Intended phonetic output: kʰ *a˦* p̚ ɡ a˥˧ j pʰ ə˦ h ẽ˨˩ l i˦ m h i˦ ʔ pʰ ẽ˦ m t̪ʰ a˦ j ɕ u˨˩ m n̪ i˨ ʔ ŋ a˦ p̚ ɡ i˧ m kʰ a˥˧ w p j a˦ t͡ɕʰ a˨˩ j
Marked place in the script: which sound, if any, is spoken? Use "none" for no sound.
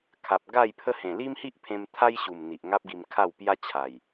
a˨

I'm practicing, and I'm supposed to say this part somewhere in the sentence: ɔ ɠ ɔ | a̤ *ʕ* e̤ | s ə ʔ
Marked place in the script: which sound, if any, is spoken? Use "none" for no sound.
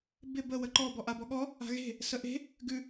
ɣ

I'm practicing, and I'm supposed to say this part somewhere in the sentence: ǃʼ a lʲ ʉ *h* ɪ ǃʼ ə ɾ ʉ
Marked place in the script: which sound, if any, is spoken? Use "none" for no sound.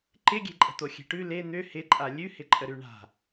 h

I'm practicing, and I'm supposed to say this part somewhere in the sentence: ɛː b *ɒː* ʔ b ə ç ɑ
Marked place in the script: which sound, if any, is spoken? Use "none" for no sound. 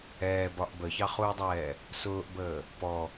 ɒ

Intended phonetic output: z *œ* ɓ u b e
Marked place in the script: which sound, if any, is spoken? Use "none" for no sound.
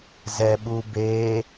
ɛ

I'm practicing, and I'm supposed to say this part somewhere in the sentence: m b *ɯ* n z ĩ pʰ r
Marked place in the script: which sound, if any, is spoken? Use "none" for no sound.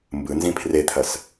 ɯ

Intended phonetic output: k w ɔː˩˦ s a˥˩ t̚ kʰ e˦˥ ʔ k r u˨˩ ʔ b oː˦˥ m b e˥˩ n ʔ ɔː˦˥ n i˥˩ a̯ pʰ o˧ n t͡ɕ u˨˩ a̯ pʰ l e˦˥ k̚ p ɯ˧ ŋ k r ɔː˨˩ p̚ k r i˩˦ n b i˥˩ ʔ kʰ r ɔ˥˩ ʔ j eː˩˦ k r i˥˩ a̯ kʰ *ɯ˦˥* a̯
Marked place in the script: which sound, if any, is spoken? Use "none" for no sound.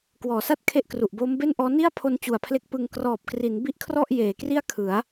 ɯ˩˦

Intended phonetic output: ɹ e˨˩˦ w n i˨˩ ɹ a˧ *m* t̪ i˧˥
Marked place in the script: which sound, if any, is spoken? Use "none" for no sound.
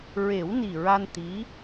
n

